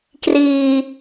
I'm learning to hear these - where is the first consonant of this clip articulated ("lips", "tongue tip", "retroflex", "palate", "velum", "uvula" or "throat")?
velum